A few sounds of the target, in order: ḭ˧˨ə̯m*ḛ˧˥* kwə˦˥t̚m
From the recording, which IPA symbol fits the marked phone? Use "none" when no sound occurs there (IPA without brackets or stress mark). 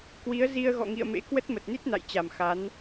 ḛ˧˥